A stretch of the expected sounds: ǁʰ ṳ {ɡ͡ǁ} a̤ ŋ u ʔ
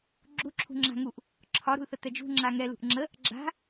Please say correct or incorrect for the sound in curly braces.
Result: incorrect